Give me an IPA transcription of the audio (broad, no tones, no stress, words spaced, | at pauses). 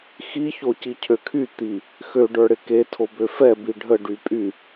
xiço cicʰøkʰy t̪i | xøɖə˞ɽɪ ke tʰobøfɛ biɖʱə ɖypʼy